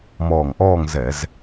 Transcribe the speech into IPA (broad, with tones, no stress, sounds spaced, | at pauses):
m ɔː˧˩ ŋ ʔ ɔː˥˧ ŋ z ɛ˧˩˧ z